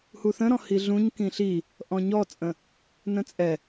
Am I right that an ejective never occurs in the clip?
no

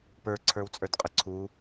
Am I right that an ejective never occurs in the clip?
no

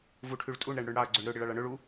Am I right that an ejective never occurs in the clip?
no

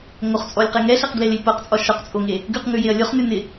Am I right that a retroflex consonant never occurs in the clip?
yes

